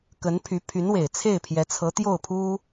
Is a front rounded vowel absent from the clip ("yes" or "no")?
no